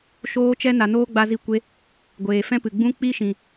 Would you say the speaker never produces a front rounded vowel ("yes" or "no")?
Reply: yes